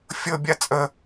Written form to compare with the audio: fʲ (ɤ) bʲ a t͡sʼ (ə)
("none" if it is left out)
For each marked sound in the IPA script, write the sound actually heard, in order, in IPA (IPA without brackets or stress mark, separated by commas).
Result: ɤ, ə